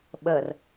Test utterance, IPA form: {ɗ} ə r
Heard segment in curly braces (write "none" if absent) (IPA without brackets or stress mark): ɓ